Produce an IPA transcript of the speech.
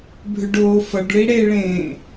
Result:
bʱʏɖoːfʌɖɭi ɽeɭẽː

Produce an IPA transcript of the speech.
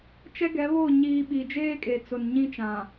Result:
t͡ʃɛ˦ɡɛ˨˦βo˦˨ ɲiː˨ ɓi˨d͡ʒeː˦kʼe˨t͡sʊ˨n ɲĩ˦t͡ʃã˨

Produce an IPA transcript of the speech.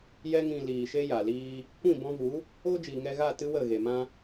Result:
jɛ˧ŋĩ˨ liː˨ʃe˦ja˨liː˦ | kʷĩ˦˨ bɔ̃˧vu˨˦ | o˦d͡ʒiː˨ŋɛ˧ɣa˦˨ tɨ˦wə˦˨ɣe˨ mã˧

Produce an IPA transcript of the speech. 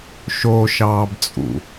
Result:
ʃo ʃɑːbt͡sʼṵ

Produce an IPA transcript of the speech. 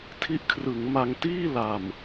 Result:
tʰi˦˥ʔkʰrɯ˩˦ŋma˧ŋ tiː˥˩la˨˩m

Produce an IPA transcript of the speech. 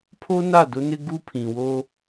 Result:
pʰo˦na˦˨dʊ˦nɪ˦ ɡu˦pʰĩ˨ wo˦

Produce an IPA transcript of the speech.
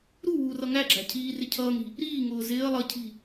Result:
ɾu wuːrʌŋæɡ͡ǁæ̤ cʰiːrɪ cʰʌːŋɾi̤ | ɾiːŋʊː zɪːə̯ lˠʌ cʰi̤

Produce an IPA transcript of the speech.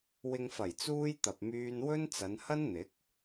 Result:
wɪ˨ŋfɐ˨˩jt͡suː˧j t̪ɐ˨p̚myː˧nwɵ˥nt͡sɐ˨˧n hɐ˥nn̪ɪ˨˥k̚

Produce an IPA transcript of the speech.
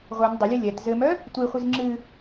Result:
ʁʷœn dˤɘlʲɨ lʲɛt zɘmœ | tʷiχʷiz ŋ͡ǁɨ

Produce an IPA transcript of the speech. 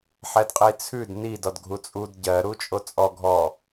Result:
ħɛdqʼit͡sʰʉd nid ɔdɡʱut͡sʼud ɟɜ ɾut͡ʃʼot͡sʼɔ ɡʱɔ

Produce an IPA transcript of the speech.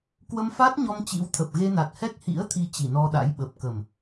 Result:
kwə˧mfa˦˥t̚ɲɔ˧m t͡ɕḭ˧˥w t̪ʰə˨˩p̚ɣe˧na˨˩t̚ hɛ˦˥k̚hḭ˧˥ə̯t̪ʰi˨˦ t͡ɕi˧˩nɔ˧ɗa̰˧˥j ɓə˨˩p̚ kə˨˩m

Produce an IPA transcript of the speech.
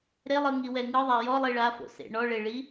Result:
ɾelˠɯŋiwɛ ŋɯðˤa jɔlˠi ɭafo̰sḛ ɳɔɭeɭi

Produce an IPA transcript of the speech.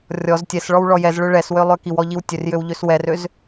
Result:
rʲɔz tʲɛsɭɔw ɭɔjɛzɭø ɭɛswø lˠøkiwɔ ʎiwtʲørjøw ʎøswɛrøz

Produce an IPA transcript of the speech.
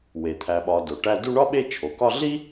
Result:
we˩t̪ʰæ˨ɓɒ˨ do˩ʈæ˦ du˦ɳɒ˥ɓe˦ t͡ʃʰo˩kɒ˦ɮi˥

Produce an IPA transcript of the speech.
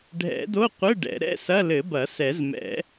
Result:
ɖʱɛ̰˨˩˦do˧˥˧qʷɘ˧˥˧ ɖɛ̰˨˩˦ ɾɛ̰˧˥˧sɐ˧˥˧ lɘ˨˩˦bɐ˨˩˦ sɛ˨˩˦zmɛ̰˨˩˦

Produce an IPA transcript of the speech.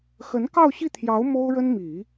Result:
xə˧˥nkɑ˥˧ʊ̯ɕi˥˩t̪ʰjɑ˧˥ʊ̯ mo˥ʊ̯ɻə˥n mi˨˩˦

